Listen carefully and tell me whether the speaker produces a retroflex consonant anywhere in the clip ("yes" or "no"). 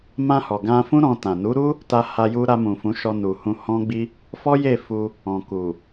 no